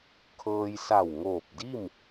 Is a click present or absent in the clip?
absent